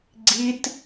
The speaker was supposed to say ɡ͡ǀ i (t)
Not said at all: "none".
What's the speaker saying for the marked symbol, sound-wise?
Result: t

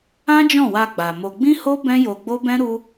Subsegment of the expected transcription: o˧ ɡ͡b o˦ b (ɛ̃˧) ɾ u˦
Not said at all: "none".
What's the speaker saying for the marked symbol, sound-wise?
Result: ɛ̃˦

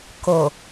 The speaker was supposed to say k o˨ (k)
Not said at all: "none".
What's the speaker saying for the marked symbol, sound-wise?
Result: none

